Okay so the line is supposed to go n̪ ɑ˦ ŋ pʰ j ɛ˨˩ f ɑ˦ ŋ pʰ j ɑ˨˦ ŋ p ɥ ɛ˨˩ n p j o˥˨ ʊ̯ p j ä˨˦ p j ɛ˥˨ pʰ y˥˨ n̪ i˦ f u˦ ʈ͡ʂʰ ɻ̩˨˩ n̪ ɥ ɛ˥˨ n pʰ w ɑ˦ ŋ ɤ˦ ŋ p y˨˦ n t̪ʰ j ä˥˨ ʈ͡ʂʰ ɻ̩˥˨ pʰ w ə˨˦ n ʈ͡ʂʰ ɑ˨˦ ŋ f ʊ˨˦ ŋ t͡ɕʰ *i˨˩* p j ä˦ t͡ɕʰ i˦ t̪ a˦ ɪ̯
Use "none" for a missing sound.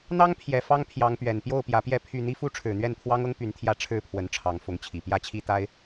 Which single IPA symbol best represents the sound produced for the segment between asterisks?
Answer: i˨˩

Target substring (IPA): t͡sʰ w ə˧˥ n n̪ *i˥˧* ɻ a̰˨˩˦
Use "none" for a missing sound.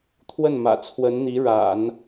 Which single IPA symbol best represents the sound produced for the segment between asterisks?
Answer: i˧˥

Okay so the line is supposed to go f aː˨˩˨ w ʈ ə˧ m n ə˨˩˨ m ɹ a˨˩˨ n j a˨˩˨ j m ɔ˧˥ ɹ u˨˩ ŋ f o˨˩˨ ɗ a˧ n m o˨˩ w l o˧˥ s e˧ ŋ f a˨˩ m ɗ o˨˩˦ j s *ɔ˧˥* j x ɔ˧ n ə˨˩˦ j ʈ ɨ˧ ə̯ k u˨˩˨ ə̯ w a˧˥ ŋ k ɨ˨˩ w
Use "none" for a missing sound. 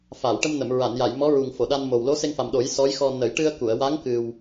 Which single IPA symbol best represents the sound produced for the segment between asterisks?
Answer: ɔ˧˥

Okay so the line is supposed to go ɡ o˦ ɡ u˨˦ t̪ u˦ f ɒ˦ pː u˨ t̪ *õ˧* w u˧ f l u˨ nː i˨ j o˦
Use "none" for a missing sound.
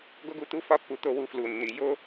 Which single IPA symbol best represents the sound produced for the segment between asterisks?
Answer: o˧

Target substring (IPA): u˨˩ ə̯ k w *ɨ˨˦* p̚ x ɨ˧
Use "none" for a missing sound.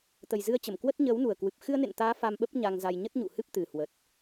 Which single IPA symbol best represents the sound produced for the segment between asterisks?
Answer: ɨ˨˩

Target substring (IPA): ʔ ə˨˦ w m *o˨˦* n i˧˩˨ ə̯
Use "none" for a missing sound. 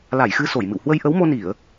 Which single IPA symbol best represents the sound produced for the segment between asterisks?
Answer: o˧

